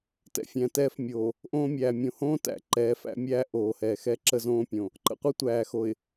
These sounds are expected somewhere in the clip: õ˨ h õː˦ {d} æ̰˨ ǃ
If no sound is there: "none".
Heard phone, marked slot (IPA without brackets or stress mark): t